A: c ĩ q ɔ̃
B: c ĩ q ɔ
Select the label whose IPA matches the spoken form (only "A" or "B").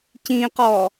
B